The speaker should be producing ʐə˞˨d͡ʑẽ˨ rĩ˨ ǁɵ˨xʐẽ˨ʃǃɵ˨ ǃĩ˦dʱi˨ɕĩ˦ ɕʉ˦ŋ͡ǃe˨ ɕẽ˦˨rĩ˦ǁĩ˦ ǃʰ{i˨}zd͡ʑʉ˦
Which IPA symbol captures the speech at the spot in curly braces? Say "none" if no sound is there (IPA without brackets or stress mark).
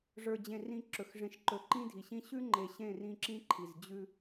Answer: i˨